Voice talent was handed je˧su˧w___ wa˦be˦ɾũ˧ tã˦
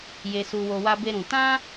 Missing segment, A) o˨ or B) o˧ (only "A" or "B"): B